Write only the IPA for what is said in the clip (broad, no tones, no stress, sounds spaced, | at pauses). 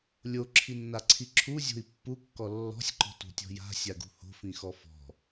lʲ o ǁʰ i nː a ǀʰ i ǁʰ u zʲ o̤ i̯ pː u kː ɔ lː ɔ̤ sʲ ǃ ɔ̤ t ṳ tʲ ɔ̤ j a̤ sʲ a ɡ ṳ h o̤ f ĩ x ɔ f ɔ̤